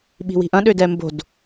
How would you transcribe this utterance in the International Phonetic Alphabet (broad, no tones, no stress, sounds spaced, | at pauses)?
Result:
ɓ i̤ w i̤ ʔ ɐ̃ ɗ ø d ɛ m b o̤ d